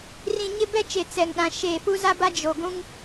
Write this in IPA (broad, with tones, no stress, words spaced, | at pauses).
rĩ˨ ɲɪ˦bɛ˦t͡ʃe˨ t͡sɛ˨ŋɗã˨ ʃeː˨fu˦za˦ba˦ d͡ʒo˨ ɡʷũ˦ŋ